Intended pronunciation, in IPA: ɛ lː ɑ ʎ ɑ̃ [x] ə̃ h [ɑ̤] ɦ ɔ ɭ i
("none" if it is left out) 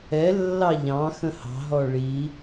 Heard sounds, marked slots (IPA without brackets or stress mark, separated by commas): x, ɑ̤